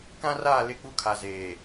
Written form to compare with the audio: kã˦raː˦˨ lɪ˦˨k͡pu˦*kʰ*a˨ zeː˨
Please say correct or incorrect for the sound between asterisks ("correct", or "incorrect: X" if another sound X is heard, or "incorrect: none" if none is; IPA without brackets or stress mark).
correct